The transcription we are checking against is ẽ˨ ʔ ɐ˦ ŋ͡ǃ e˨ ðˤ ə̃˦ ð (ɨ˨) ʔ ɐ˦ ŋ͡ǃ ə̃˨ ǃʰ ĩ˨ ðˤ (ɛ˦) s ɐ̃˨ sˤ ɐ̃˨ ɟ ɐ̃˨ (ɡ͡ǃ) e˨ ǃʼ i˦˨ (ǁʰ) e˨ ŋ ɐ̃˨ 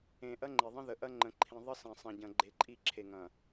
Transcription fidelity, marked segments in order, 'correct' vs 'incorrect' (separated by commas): incorrect, incorrect, correct, correct